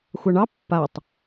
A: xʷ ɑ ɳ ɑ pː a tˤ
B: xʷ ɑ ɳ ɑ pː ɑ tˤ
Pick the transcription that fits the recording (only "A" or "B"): A